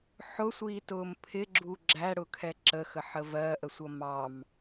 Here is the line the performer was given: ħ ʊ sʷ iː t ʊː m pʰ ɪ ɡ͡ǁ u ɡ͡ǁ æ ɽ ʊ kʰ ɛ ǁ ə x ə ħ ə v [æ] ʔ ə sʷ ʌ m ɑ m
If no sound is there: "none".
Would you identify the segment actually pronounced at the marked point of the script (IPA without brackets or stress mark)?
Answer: ɜ